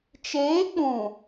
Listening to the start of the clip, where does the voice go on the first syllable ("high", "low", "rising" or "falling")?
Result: rising